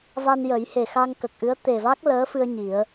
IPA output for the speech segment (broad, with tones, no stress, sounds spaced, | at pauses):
v a˧ n j ə˨˩˦ j h e˨˩ x a˧ ŋ k ə˨˩ k̚ ʔ ɨ˧˥ ə̯ t̪ e˨˩ v a˦˥ k̚ l əː˧˥ f ɨ˧ ə̯ ɲ i˨˩˦ ə̯